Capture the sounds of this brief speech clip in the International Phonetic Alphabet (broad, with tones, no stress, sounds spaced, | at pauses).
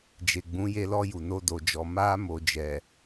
d͡ʒ e˨ ɡ͡b ũ˨˦ j e˧ l ɔ˧ j u˨ n o˧ d o˨ d͡ʒ ɔ˨ m a˧ m o˨ d͡ʒ ɛ˨